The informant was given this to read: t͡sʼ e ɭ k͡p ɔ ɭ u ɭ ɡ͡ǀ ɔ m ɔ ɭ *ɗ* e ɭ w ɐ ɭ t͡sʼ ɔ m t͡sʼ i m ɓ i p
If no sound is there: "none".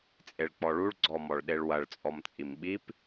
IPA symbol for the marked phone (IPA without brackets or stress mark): ɗ